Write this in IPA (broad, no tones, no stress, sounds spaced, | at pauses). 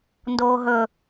n d oː ɦ ɵ